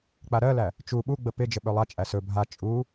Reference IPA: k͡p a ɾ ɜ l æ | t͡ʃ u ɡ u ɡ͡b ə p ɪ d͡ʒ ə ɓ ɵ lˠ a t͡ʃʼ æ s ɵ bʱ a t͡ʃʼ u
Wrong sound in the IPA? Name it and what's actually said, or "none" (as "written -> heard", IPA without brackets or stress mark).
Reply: ɡ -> ɓ